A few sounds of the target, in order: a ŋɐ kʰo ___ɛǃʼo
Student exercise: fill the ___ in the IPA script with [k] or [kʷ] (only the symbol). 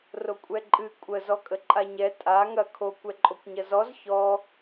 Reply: kʷ